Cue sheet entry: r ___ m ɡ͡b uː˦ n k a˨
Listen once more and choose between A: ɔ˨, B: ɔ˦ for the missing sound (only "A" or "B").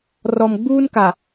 A